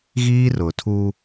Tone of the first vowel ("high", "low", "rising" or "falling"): high